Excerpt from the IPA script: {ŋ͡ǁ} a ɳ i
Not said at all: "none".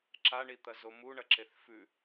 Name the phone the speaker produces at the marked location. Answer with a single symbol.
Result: ǁ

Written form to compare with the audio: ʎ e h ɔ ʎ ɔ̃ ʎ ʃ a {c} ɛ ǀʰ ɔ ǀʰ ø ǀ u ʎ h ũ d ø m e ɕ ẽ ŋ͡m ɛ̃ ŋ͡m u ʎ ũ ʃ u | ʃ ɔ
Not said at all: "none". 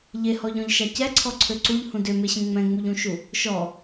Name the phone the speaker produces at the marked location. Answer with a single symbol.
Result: c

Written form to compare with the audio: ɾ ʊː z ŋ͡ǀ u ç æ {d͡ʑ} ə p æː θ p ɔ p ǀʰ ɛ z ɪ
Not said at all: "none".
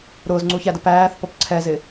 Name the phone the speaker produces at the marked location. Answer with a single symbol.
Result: d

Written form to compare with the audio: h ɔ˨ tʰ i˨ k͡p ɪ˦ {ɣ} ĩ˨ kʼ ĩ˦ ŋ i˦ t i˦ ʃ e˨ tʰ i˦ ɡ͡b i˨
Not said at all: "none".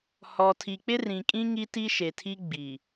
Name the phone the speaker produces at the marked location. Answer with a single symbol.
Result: r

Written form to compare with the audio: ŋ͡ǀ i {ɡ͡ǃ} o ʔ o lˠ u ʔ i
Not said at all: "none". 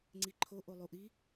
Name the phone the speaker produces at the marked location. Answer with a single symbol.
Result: ǃʰ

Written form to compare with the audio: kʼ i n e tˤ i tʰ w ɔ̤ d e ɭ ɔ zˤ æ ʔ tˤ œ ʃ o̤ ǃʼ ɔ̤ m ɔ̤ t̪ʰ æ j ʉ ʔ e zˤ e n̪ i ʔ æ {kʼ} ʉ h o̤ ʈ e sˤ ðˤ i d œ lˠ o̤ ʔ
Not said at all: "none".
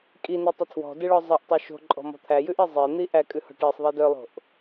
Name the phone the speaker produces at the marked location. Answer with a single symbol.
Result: kʼ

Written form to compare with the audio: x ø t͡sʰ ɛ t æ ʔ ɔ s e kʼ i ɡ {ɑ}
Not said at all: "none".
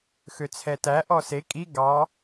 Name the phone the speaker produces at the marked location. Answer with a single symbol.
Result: ɑ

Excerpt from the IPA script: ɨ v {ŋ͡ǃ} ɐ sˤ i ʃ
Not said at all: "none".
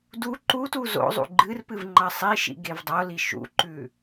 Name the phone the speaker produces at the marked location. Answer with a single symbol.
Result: ŋ͡ǃ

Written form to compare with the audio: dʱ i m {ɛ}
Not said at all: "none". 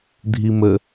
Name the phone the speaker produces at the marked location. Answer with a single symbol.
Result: ə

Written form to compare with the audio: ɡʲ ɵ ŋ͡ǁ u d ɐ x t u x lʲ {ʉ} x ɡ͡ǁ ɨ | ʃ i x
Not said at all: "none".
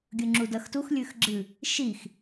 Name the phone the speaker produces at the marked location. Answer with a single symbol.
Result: ʉ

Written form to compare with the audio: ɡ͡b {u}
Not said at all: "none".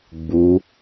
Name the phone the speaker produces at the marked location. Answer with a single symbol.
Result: u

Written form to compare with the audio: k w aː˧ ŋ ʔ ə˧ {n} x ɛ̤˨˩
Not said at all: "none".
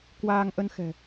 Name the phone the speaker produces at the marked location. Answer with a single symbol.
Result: n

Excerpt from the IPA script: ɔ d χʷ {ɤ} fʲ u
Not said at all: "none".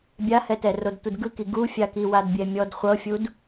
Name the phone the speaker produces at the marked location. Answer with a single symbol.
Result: ɤ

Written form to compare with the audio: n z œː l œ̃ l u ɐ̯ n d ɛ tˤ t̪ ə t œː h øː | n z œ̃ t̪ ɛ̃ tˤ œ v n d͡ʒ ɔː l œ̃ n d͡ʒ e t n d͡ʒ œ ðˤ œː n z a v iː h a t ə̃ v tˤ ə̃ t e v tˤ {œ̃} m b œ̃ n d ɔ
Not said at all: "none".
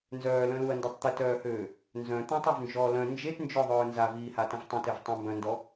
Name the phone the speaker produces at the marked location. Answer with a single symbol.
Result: ə̃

